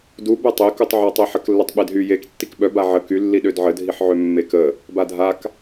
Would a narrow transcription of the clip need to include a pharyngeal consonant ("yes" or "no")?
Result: yes